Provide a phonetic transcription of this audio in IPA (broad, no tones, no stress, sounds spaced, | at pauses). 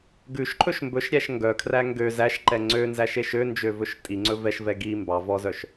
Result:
ɡ ʉ ʃ ǃʰ ɵ ʃ m b ɵ ʃ ɾʲ æ ʃ ŋ ɡ œ kʰ r æ ŋ ɡ ø z æ ʃ ǃ ɛ ŋ͡ǀ ø n z æ ʃ e ʃ ø n d͡ʒ ø v ɵ ʃ tʼ i ŋ͡ǀ ɵ v ɛ ʃ v ɛ ɡ i m b ɑ v ɔ z œ ʃ